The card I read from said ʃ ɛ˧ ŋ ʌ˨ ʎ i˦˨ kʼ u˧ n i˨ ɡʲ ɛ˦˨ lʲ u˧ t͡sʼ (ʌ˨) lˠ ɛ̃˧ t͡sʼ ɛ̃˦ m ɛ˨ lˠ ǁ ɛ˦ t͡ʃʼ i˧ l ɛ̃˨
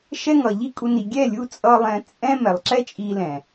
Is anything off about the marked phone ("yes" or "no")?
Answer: yes